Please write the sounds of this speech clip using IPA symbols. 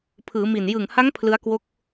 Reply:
pʰ ɯː˩˦ m i˨˩ n j ɯ˨˩ ŋ h a˦˥ ŋ pʰ l ɯ˦˥ a̯ k w o˦˥ k̚

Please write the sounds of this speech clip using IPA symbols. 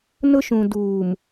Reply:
n ʊ˦ ʃ ũ˨ d uː˨ m

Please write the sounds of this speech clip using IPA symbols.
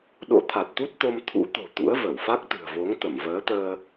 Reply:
ɗ o̰˧˥ t̪ʰ a˨˩ t̚ t̪ u˦˥ t̚ t̪ o˧ m t̪ʰ ṵ˧˥ t̪ o̤˨˩ t̪ ṵ˧˥ ə̯ v ə˧˩ w f a˦˥ k̚ t̪ ɨ̤˨˩ ə̯ v o˨˦ ŋ t̪ ə˧˩ m v əː˨˦ t̪ əː˧

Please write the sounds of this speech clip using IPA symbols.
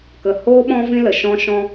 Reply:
k ə˨ h oː˦ ɓ ɔ̃˦ v ĩ˦ l ə˨ ʃ ɔ̃˦ ʃ ɔ̃˦

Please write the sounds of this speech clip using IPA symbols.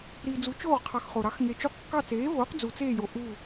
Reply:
ɾ iː˨ d͡z u˨˥ t͡ʃ oː˦˨ ʁ qʰ ɑ˨ x χ o˨ ɾ ɑ˨˥ x ŋ e˨ t͡ʃ u˦˨ q kː ɑ˦˨ t͡s eː˨˥ v oː˨˥ q d͡z u˨ t͡s eː˦˨ j o˨ ʔ u˦˨

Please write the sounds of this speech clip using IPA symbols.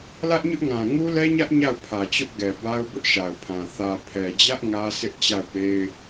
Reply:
l ä˦ ʔ ɲ ʊ˦ ʔ ŋ ã˨ ŋ u˦ l ɛ˦ ɲ ä˦ ʔ ɲ a˦˨ ʊ̯ pʰ ä˨ t͡ɕ ʊ˦ ʔ ɡ ɛ˨ b a˦ ʊ̯ b ʊ˦ ʔ ʃ a˨ ʊ̯ pʰ ã˨ θ ä˨ pʰ ɛ˨ d͡ʑ ä˦ ʔ ŋ ä˦ s ɪ˦ ʔ t͡ɕ a˦˨ ʊ̯ p e˦ ɪ̯

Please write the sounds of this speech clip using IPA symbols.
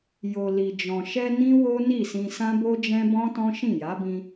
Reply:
j o˨ l i˨ d͡ʒ ɔ̃˨ ʃ ɛ˧ n ĩ˦ w o˦ n i˦˨ s ĩ˧ s ã˦ b o˦ d͡ʒ ɛ̃˦ b ɔ̃˦ t ɔ̃˦ ʃ ĩ˦˨ j a˨˦ b ĩ˧

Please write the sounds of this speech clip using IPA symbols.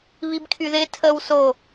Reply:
β i b kʰ y ð ɪ tʰ ə w s o

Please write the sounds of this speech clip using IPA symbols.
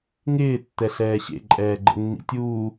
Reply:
ŋ ɪː tː ɛ ɬ ɛː ɕ ḛ ǃʼ ɛː ɡ͡ǃ ə̰ nː ḭ tʲ uː

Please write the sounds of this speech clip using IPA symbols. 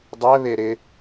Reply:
dˤ ɛ β e ɾ ɪ

